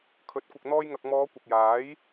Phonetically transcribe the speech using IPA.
kʰɵ˨˥t̚kʷɪ˨k̚ n̪ɔː˧jŋɐ˨k̚mɔː˨˧ kʷɐ˨k̚jaː˨˥j

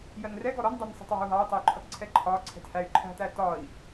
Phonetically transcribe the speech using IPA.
jɜnrɛɡɔ ɾɔndˤɛnsˤɛ̤tˤ wæ̤u̯ɦɑu̯tˤɛy̯ǃʰʌt ǀʰɛǃʰɒ ǀʰɛ̤thæy̯ ǃʰæ̤t̪æ tɒi̯

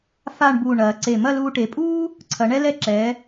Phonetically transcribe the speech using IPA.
fa˥˧ɳbuː˧˩ɳɐː˩˧ǀe˧˩ mɐ˥˧luː˧ ʈe˩˧pʼuː˥ | ǀʰɐ˩˧ɳɛ˥lɛ˥˧ ǁɛː˩˧

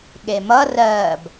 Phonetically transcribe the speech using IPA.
ɠemʌ rɜːb

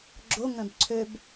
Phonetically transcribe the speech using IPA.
ɡ͡ǁo ŋœ̃bǀʰøb

